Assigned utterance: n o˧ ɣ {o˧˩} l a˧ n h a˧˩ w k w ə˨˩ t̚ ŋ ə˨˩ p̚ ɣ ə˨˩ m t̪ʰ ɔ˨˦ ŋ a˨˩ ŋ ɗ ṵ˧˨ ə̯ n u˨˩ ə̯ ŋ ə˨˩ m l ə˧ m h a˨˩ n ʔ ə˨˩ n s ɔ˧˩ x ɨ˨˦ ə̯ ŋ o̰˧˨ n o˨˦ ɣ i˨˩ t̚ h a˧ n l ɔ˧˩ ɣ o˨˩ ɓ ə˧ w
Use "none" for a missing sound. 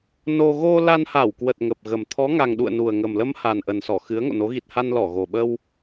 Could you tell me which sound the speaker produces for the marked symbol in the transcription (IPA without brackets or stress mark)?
o˧